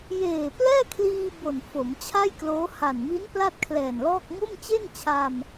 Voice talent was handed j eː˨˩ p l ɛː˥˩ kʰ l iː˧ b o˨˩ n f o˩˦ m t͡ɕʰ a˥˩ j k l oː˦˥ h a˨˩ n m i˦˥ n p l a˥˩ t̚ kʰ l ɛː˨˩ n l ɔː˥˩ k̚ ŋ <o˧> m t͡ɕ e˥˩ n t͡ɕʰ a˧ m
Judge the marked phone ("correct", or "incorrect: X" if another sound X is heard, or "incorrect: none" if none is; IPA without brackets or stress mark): incorrect: o˥˩